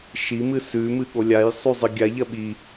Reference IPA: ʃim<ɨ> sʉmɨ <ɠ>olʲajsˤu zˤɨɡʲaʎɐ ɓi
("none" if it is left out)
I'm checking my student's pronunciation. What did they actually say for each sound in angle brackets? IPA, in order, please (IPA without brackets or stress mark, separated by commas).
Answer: ɨ, ɠ